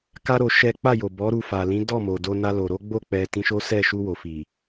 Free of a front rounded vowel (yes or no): yes